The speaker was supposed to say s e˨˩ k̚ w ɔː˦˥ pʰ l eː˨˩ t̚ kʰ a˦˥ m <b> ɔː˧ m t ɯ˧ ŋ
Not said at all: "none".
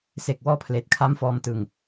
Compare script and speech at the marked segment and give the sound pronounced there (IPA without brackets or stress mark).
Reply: f